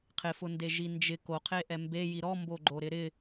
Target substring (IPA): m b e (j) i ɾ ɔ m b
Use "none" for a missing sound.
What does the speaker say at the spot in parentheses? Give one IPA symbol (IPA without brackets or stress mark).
j